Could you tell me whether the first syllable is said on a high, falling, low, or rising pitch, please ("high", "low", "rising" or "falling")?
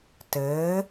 rising